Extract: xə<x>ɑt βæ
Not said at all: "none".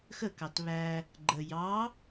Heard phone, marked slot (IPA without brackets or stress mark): k